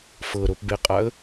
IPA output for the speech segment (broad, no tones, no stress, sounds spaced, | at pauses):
f ɤ ɾ o p b e qʼ a ə̯